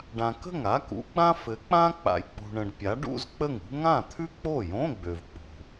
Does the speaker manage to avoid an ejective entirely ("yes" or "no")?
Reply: yes